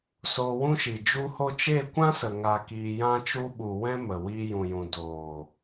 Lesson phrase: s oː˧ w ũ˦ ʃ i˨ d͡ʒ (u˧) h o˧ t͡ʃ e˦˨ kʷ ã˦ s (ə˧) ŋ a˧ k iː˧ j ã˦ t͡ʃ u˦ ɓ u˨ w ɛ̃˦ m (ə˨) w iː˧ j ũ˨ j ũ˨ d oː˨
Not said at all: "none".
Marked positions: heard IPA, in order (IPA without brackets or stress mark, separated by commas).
u˧, ə˨, ə˨